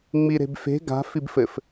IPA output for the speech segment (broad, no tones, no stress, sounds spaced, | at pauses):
ŋ͡m i ɾ e̤ b f e̤ ɡ a̤ f i b f ɘ f